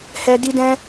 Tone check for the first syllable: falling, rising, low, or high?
high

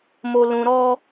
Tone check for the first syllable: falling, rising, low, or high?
low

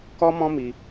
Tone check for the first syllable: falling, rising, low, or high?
high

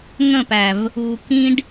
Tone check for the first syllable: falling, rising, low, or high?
falling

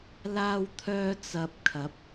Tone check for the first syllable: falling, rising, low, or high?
high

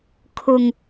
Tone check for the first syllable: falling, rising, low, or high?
low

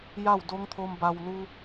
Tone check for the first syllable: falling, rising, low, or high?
falling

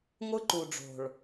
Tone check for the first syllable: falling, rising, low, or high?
high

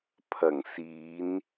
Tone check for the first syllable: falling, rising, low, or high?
low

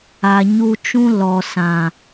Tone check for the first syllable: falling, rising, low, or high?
low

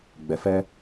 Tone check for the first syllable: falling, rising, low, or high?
low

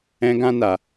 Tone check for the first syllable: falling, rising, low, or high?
high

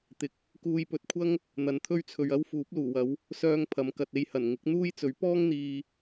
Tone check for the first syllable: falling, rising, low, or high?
rising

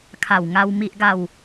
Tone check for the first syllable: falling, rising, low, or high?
low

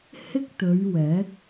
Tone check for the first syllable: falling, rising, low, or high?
high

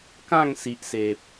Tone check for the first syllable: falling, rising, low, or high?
falling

